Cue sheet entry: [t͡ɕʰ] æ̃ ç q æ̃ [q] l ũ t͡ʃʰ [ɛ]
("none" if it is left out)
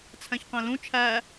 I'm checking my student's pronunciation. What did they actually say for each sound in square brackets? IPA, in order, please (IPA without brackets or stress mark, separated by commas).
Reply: t͡sʰ, none, æ